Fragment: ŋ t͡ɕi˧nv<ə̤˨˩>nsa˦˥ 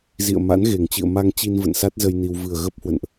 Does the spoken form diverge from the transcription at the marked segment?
yes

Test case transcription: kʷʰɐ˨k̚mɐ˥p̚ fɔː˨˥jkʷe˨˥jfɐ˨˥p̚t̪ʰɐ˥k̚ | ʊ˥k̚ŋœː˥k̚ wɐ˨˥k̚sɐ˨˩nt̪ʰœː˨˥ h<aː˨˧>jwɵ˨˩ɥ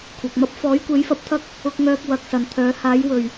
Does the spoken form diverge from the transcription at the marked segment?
yes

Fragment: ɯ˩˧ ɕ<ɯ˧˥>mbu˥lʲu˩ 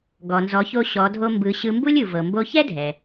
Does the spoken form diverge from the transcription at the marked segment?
yes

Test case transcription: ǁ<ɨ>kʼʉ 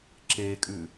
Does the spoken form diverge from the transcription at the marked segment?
yes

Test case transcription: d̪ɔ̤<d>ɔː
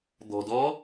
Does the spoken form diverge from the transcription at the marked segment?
no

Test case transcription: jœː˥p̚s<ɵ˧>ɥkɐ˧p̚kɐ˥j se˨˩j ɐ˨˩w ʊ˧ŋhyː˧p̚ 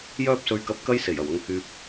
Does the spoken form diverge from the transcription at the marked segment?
no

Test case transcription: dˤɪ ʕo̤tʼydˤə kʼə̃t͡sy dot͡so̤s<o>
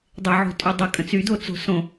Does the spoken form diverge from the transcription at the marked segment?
yes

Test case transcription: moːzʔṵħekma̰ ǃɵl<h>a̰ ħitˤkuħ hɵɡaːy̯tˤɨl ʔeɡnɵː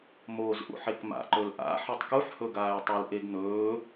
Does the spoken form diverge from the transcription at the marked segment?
yes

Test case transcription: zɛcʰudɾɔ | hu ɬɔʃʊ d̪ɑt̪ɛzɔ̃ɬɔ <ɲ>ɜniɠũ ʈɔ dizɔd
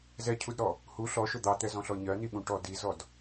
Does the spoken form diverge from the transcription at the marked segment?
no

